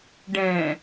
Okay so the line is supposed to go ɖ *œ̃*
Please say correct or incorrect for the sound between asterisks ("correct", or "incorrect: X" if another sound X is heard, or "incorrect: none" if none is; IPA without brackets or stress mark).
incorrect: ɛ̃